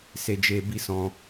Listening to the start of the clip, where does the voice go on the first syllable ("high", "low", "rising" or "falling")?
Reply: low